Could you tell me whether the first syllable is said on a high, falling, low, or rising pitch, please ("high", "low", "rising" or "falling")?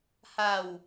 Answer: low